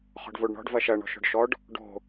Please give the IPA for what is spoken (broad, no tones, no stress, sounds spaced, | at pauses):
χ ɔ̤ ɖ v o ɖ ɳ ɔ̤ ɖ v ɐ ʃ ɐ ɳ ɔ̤ ʃ ɔ̤ ɖ ʃ ɔ ɖ | ɖ o̤